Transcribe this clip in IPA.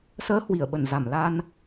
s əː˨˦ h w i˧˩ ə̯ ɓ ə˧˩ n z a˧˩ m l a˧ n

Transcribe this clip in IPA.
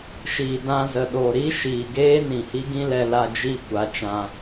ʃ iː˨ d ã˧ z ə˨ ɗ o˨ ɾ i˦ ʃ iː˨ ɡ eː˦ n ĩ˨ h i˦ ɡ ĩ˦ l ɛ˧ l a˧ d͡ʒ i˦˨ kʷ a˨˦ t͡ʃ ã˧

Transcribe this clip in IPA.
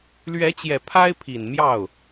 l ɥ ɛ˧˥ t͡ɕ j ɛ˨˩ pʰ a˥ ɪ̯ pʰ i˨˩ n m j ɑ˥˩ ʊ̯

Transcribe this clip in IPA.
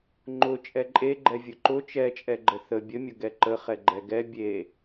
ŋ͡ǃ ʊ t͡ʃʼ ɛ ǃʼ e ɡ͡ǃ ɛ vʲ ʊ ǃ ʊ t͡ʃ ɛ t͡ʃʼ ɛ ɡ͡ǃ ə θ ə bʲ ə mʲ ʊ ɡ ɛ ǃ ə χ ɛ ɡ͡ǃ ɛ ɡ ɛ bʲ e

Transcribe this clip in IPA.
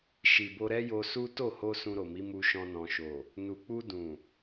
ʃ i˨ b o˧ ɾ ɛ˦ j o˧ s u˦ t o˦˨ h o˧ s ũ˧ ɾ o˨ m i˨˦ m u˧ ʃ ɔ̃˧ n ɔ̃˨ ʃ o˨ | n u˨ k͡p u˧ d ũ˨

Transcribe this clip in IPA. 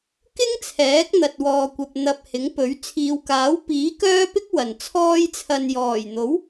k ɪ˥ ŋ t͡sʰ ɛː˨˥ k̚ n̪ ɐ˨ t̚ w ɔː˨ kʷ ɐ˨ p̚ n̪ ɐ˨ p̚ h ɪ˨˥ ŋ p ɵ˨˥ ɥ t͡sʰ iː˨ w k aː˨˥ w p iː˨˥ k œː˥ p ɪ˥ k̚ w ɐ˨ n t͡sʰ ɔː˥ j t͡sʰ ɐ˧ n j ɔː˨˩ j n̪ o˨˥ w

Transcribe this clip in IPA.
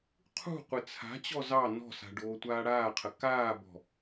qʰ ṳ qʷ ɪ t͡sʰ a̤ t͡ɕ ɔ z ɑ n ɔ̤ s a̤ ɖ oː tʷ aː ɽ aː qʰ ə k aː b ɔ̤

